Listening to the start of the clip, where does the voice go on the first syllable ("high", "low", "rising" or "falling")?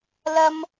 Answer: high